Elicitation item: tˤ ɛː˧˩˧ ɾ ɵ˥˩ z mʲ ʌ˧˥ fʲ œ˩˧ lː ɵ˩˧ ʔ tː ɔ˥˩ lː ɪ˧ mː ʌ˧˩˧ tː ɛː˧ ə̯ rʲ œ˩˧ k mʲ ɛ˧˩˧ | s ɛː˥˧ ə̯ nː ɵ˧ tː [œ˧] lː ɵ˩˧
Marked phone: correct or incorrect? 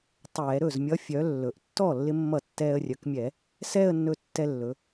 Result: incorrect